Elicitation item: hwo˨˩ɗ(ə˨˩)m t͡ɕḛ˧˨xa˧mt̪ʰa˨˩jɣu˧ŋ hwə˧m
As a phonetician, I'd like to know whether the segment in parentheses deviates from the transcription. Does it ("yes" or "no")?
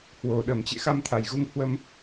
no